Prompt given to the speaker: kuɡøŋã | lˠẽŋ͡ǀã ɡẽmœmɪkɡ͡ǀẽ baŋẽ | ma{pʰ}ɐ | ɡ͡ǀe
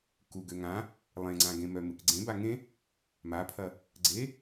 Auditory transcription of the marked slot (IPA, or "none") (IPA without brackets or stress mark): pʰ